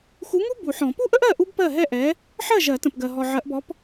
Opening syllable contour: rising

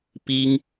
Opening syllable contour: high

